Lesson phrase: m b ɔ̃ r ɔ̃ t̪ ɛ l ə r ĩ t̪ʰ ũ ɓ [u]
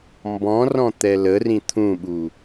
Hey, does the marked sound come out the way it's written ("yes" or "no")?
yes